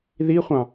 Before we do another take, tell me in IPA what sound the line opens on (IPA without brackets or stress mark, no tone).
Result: ð